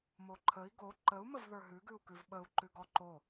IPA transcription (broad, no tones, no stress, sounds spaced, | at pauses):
m o ǃʰ ə i̯ ɡ o ǃ ə u̯ m ə v ð ə˞ ɦ ʉ ɡ ʉ u̯ k ʉ v ɓ ə u̯ ǃ ʉ ɡ ɔ ǃ o